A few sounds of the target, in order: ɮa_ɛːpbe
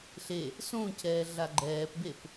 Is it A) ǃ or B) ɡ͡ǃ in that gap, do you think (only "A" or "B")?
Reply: B